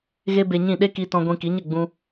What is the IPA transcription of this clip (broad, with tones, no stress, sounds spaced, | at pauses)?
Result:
ɣ e˦ b e˧ ɲ ĩ˦˨ ɗ e˦ k i˧ t ɔ̃˧ ɡʷ ĩ˧ k i˨˦ ɲ ə˦˨ ɡ͡b ũ˧